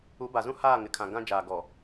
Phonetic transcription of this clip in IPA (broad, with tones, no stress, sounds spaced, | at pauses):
u˨˦ b a˨ z ũ˦ h aː˦˨ ŋ ɪ˨ kʰ ã˨ ɡ ã˦ d͡ʒ aː˨ ɡ ɔ˨